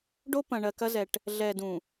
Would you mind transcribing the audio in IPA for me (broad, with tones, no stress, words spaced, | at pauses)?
ɖo˦ pɐ̃˨ɳɜ˨ kɐ˦zɛ˨ʈ | ɮɛ˨ dũ˨